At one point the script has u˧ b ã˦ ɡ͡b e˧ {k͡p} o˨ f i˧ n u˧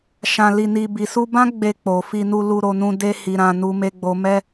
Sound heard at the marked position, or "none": k͡p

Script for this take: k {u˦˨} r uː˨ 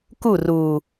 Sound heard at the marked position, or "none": u˦˨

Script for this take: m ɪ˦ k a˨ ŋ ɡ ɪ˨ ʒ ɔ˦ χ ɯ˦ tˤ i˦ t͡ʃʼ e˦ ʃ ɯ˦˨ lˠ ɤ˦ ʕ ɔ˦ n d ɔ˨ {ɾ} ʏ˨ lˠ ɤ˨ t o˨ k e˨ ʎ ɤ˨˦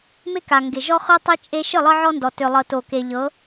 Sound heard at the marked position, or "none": t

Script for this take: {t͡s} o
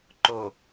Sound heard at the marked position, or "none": ǃ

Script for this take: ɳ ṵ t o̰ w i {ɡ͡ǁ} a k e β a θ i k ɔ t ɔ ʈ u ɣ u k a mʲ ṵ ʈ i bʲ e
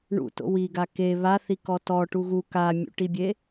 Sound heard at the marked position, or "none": ɡ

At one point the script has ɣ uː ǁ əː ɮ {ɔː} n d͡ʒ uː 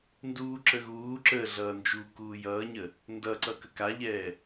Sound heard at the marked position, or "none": ʌː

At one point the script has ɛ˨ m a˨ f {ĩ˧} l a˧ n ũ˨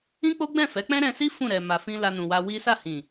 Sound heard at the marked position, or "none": ĩ˧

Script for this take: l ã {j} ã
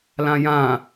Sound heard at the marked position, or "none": j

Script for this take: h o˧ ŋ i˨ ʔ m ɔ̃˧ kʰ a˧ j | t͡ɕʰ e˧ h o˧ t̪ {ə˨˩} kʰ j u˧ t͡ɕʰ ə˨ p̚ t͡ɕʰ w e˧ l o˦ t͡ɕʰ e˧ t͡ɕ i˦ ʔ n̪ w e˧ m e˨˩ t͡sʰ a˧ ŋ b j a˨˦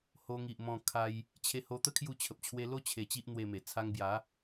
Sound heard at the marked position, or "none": ə˦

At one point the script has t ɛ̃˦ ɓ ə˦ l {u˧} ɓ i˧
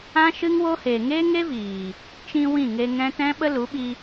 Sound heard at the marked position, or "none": u˨˦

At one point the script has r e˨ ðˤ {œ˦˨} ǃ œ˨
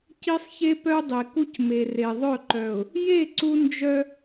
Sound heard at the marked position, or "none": œ˦˨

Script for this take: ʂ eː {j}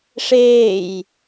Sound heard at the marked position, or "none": j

